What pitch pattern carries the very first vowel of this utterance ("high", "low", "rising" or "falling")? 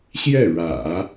falling